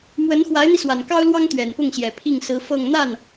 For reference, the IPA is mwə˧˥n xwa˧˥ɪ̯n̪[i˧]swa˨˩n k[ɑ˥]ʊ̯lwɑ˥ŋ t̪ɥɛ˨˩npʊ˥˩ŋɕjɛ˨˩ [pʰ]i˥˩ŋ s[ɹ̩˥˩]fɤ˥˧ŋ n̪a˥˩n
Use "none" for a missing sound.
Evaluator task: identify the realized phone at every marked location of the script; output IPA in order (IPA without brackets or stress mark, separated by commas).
i˧, ɑ˥, pʰ, ɹ̩˧˥